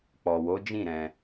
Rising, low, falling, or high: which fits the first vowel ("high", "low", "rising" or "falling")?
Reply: low